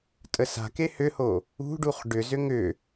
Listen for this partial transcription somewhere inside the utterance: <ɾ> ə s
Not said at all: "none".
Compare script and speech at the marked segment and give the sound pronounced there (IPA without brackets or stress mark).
tʼ